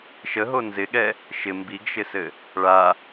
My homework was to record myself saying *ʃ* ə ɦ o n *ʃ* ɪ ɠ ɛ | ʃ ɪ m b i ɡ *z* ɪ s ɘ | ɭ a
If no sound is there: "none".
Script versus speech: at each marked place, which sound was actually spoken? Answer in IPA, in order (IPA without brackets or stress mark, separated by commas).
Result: ʃ, z, ʃ